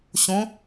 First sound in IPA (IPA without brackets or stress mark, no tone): ɕ